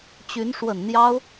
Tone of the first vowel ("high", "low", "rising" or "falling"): rising